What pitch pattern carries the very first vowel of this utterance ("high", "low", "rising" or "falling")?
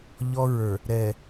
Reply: high